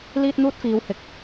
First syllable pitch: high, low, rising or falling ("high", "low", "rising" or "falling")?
high